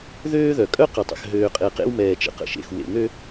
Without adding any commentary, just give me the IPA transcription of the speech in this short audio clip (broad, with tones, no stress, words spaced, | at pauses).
ðøː˦ðœ˨ kʼœ˦qə˨tˤə̰˨x ɦøː˨qʼe˨qḛ˦w mɛː˨t͡ʃə̰˨qə̰˨ʃḛ˨x wḛ˨ŋø˦